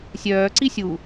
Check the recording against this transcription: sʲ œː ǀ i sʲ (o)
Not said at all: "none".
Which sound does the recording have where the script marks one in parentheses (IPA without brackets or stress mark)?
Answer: u